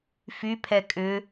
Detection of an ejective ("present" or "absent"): present